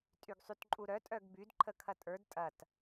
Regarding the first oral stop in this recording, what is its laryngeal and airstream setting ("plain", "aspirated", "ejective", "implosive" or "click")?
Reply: ejective